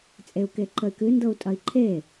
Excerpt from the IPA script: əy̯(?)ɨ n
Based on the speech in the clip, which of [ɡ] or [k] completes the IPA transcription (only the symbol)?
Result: k